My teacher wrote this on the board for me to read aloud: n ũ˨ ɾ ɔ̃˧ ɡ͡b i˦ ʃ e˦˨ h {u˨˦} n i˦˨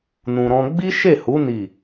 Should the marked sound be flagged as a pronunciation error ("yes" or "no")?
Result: no